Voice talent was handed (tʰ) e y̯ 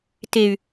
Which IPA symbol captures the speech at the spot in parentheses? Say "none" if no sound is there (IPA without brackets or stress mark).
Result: t